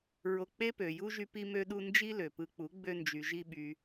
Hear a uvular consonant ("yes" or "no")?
no